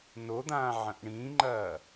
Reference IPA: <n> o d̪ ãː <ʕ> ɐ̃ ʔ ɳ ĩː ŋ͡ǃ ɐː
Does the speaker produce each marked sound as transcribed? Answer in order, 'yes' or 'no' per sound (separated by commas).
yes, yes